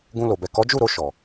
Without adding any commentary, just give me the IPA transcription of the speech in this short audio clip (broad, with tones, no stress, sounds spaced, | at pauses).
ɡ ũ˧ l o˨ b ɛ˨ k ɔ˨˦ d͡ʒ u˦˨ ɾ o˧ ʃ ɔ˨